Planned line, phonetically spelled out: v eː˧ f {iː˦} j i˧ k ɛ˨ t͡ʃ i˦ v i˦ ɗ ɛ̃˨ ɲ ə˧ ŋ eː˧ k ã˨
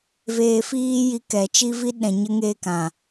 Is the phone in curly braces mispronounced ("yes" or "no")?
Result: no